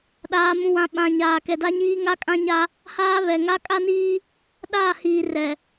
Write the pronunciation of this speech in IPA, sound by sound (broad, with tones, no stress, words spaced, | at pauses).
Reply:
ɗaː˨mũ˨wã˨ ɓã˨ ɲaː˨kɛ˨da˦ɲiː˦ ŋa˦kʼã˦ ɲa˦ | haː˦βɛ˨ŋa˦ kʼa˦niː˦ | ɗaː˦˨ hiː˨ rɛ˨